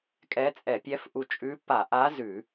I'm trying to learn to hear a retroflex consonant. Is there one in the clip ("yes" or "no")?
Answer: no